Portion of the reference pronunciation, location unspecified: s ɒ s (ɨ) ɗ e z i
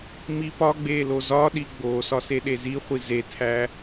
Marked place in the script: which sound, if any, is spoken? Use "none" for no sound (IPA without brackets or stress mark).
e